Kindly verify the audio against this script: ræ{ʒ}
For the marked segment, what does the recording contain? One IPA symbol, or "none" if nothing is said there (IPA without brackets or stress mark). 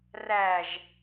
ʒ